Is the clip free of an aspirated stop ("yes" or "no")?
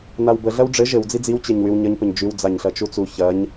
yes